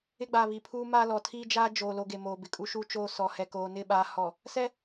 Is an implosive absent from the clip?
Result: no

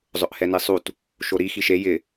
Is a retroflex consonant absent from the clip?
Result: yes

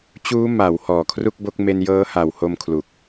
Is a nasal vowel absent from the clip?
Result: yes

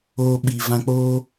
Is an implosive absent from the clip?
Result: no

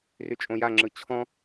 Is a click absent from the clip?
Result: no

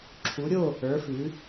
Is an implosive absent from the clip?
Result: yes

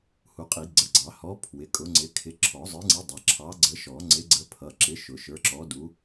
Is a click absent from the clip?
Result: no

